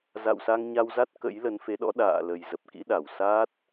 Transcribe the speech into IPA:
z a̰˧˨ w s a˧ ŋ ɲ a˧ w z a˦˥ t̚ k ə̰˧˥ j l ə˨˦ n f e˨˦ ɗ ɔ̰˧˥ ɗ a̰ː˧˨ l ə˨˩ j z ə˨˩ p̚ k ḭ˧˥ ɗ a˧˩ w s a˦˥ t̚

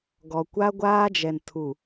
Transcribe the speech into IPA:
ɡ ɔ˨ kʷ a˦ ɡʷ aː˦ d͡ʒ ɛ˨ n tʰ u˨

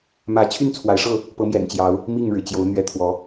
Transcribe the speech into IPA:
m ä˨˦ t͡ɕʰ y˥˨ n t͡sʰ w a˨˦ ɪ̯ ʂ ɤ˥˨ | p ɤ˨˦ m j ɛ̰˨˩ n t͡ɕ j ɑ˨˦ ʊ̯ | m i˥˨ ŋ ɻ ɻ̩˩ t͡ɕ j o˨˦ ʊ̯ n̪ ɥ ɛ˨˦ t̪ʰ w ɔ˨˦

